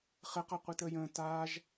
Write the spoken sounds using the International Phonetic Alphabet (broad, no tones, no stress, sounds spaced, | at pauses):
χ ɘ q a qʷ i t əː j ə̃ː t aː ʒ